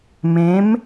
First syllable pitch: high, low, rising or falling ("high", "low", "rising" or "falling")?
rising